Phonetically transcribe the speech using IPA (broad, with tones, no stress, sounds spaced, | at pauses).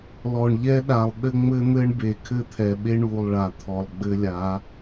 l ɔ˨ ɳ ʎ ɛ˦ ɗ a˨ lˠ ɗ ɘ˦ ŋ͡m ɘ˦ n̪ ɘ˦ ɳ b e˨ kʰ ɘ˦ t̪ʰ ɛ˨ ɓ e˦ ɳ u˨ lˠ ɭ a˨ t̪ʰ ɔ˨ lˠ ɡ͡b ɘ˦ lʲ a˨˦